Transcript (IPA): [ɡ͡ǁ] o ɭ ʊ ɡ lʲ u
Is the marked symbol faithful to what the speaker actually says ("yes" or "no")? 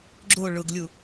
yes